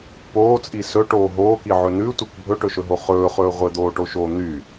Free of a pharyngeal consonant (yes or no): no